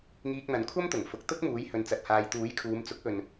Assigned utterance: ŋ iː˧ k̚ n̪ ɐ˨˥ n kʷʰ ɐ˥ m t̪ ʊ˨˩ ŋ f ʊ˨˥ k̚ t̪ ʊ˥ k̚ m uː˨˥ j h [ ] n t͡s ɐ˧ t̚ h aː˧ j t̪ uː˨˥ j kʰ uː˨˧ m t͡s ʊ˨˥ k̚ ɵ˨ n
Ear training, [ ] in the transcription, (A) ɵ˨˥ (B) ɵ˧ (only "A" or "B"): B